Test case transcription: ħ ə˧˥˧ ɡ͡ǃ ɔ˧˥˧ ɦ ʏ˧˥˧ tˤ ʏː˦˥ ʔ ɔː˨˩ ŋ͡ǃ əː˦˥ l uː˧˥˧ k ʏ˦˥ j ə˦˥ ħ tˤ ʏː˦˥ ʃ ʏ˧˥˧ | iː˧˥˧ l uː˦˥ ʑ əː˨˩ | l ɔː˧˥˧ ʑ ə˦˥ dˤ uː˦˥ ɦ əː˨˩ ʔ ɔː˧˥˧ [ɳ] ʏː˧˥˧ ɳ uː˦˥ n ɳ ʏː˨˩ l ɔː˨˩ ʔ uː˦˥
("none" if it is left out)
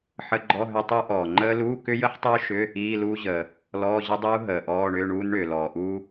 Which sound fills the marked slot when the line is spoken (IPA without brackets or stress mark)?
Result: ɳ